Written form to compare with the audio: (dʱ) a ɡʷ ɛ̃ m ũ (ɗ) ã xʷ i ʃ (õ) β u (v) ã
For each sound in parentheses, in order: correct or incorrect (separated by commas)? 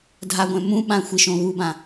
correct, incorrect, correct, incorrect